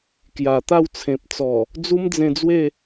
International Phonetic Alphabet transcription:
k j a˨˩ t̪ a˥˧ w t͡sʰ ẽ˨ p̚ t͡s ɔ˨˩ | d͡z u˦ m d͡z ẽ˧ d͡z w e˥˧

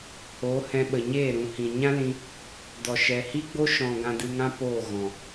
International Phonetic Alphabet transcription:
h o˨˦ h ɛ̃˧ ɓ ə˨ ɲ eː˦˨ ɾ ũ˨ h ĩ˨ ɲ ã˦ l ĩ˧ | d ɔ˨ ʃ ɛ˨ h i˦ ɡ͡b o˦ ʃ ɔ̃˨ ɡ ã˧ d ɨ˧ ŋ ã˦ p oː˦˨ ɣ ɔ̃˨

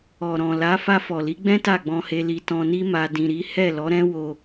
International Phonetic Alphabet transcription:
ɔ˨ ɾ ɔ̃˨ l a˨˦ f a˧ f ɔ˨ l i˨˦ ɡ͡b ɛ̃˦ t a˦˨ ɡ͡b ɔ̃˧ h e˧ l i˧ t ɔ̃˧ n i˦ m a˧ d ĩ˧ ɾ i˦ h ɛ˦˨ l ɔ˨˦ ɾ ɛ̃˦ w o˧

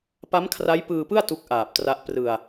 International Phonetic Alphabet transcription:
p a˦˥ m kʰ r a˦˥ j p ɯː˧ p ɯ˥˩ a̯ t u˦˥ k̚ ʔ aː˨˩ p̚ t r a˦˥ ʔ p r ɯ˧ a̯

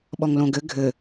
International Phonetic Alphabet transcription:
ɓ ɔ ŋ l õ ɡ ɘ ɡʱ ɘ

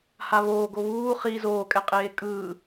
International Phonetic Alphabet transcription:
h a β oː ɡ o β uː χ i z oː kʼ ɛ qʼ eː kʼ ɯː

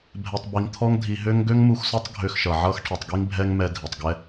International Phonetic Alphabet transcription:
bʱ ɛ˧ tˤ b i˧ ŋ t̪ʰ ɔ˦ ŋ dʱ i˧ ɦ ø˧ ŋ ɡ ø˦ ŋ m u˧ x s ɔ˦ tˤ ɡʱ ø˧ x ʃ ʌ˨ ʕ ʌ˧ x ʈʰ ʌ˨ tˤ ɡ i˧ ŋ bʱ ɛ˦ ŋ m ɛ˧ dʱ i˨ tˤ ɡ ɛ˦

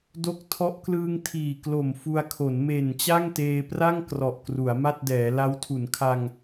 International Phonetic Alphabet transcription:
d o˦˥ k̚ tʰ ɔ˦˥ ʔ k l ɯː˧ ŋ tʰ iː˨˩ k l o˨˩ m f u˧ a̯ kʰ o˩˦ n m e˨˩ n t͡ɕ a˥˩ ŋ t eː˧ p r a˥˩ ŋ k r ɔ˨˩ ʔ k r u˩˦ a̯ m a˥˩ t̚ d ɛː˩˦ l a˦˥ w tʰ u˩˦ n kʰ a˧ ŋ

